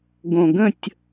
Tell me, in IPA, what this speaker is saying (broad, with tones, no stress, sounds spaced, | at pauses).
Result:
ɡ õ˨˩ ɡ ə̃˥˨ tʲ